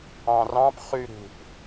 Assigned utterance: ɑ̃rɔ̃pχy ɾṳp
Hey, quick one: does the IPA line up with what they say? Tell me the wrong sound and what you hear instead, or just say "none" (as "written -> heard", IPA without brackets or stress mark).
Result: ɔ̃ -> ɑ̃